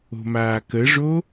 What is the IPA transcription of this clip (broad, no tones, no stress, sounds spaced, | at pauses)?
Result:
o̤ m aː k ə ʐ o